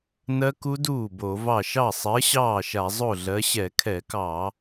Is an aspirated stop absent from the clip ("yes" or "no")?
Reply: no